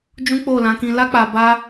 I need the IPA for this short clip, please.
d͡ʒ ũ˦ k͡p o˦˨ l ã˨˦ k ĩ˧ l a˦ k͡p a˧ b a˦

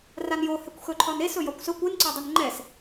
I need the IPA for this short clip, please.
r a n j o h ɛ kʷ x ɵ ǃʰ ɒ n e s ɵ j ɒ kʷ s ɵ kʷ e n ǀ ɒ dˤ ɵ n ŋ͡ǃ ɛ s

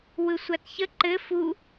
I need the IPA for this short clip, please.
w ɯ sʷ a t ç ə ǃ ɘ f u

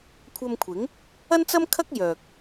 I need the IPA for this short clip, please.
kʷʰ ɐ˧ m kʷʰ ɪ˨˥ ŋ | ɐ˥ n t͡s ɐ˥ m kʰ ɐ˥ k̚ j œː˨ k̚

